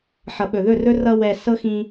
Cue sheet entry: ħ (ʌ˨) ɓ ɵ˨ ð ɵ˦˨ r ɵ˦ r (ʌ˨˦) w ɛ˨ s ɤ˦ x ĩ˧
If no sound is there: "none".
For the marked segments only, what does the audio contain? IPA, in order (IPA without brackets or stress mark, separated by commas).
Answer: ʌ˨, ʌ˧